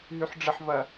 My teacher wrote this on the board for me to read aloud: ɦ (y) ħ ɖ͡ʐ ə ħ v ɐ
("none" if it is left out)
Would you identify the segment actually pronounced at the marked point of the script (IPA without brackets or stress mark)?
y